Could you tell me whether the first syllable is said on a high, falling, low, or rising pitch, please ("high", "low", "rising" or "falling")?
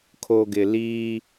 low